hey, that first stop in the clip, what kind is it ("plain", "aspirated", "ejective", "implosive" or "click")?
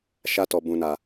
plain